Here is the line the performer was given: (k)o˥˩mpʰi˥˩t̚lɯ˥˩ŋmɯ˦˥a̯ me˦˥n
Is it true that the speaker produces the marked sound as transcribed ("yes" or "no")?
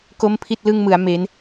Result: yes